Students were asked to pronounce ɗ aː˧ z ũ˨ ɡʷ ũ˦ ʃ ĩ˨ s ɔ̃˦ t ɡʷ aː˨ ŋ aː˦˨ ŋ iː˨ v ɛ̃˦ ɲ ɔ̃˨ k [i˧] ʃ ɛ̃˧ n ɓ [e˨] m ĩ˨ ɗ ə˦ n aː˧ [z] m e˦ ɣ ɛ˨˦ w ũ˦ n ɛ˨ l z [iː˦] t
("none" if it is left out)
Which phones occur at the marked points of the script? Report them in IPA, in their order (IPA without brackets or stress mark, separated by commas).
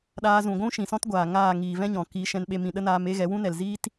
iː˧, e˧, none, iː˦